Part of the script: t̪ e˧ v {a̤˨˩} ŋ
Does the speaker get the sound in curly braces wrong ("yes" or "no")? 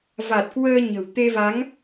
yes